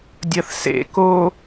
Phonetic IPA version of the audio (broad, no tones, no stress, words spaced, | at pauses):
dʲɐθsḛ ko